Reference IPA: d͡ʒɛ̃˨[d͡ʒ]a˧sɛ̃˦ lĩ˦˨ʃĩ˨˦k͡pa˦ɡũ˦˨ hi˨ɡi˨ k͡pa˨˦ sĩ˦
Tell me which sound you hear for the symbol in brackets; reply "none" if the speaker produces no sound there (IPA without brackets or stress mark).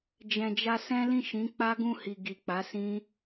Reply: d͡ʒ